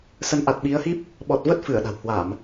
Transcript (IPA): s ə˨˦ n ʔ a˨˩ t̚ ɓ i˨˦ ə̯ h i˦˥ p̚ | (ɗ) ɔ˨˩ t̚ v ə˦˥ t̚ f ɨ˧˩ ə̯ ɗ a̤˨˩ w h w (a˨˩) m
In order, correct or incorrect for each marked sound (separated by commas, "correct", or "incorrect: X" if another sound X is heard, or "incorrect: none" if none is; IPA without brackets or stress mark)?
incorrect: ɓ, incorrect: a˧˩˨